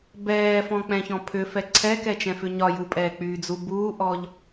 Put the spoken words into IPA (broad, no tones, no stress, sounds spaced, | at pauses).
b ɛː f ɔ̃ k͡p ɛ̃ ç ɔ̃ pʰ ʏ f ɛ ǀʰ ɛ k ɛ t͡ʃ ɛ̃ f ʏ ɲ ɒ j u pʼ ɛː k͡p yː d͡z u b uː ʔ ɔ ʎ